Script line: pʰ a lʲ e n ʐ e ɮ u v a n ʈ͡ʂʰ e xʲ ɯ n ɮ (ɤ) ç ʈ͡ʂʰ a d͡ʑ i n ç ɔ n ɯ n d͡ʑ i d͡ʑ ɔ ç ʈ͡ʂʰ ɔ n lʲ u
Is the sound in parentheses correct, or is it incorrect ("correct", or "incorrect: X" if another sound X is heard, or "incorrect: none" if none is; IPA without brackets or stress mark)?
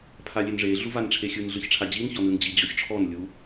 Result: incorrect: ɯ